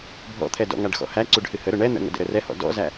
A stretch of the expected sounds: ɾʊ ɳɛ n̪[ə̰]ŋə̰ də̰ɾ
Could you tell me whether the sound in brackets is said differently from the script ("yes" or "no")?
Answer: no